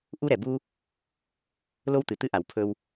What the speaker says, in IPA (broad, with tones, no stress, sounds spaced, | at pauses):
ʔ u˥ ɾ ɛ˩ b u˥ | l o˥ w t̪ ɨ˩ t̪ ɨ˥ ʔ a˩ w pʰ ɵ˥ w